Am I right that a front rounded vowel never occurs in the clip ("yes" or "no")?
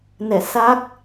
yes